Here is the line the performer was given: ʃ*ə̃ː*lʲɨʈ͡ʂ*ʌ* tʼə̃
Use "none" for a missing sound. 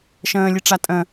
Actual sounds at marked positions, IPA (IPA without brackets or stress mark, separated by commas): ə̃ː, a